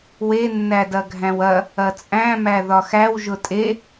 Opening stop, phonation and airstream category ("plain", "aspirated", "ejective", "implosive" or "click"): plain